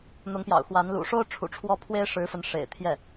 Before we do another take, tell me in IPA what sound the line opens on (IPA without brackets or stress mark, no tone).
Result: n̪